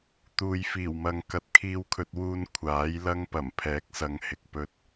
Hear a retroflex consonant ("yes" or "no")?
no